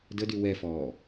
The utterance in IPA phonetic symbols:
d ə d y w ɛ f ɔː

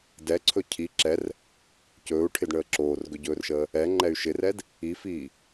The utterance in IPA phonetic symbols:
d ɛ ǀʰ ɵ cʰ i ǁ ɛ r | c ɵː u̯ ʈʰ ɪ d ɳ əː ǁ oː r ɡ ɵ ɟ ɵː r ʃ əː | ɛ ŋ͡ǃ ɛ y̯ ʃ ɪ r ɛ d | i f iː

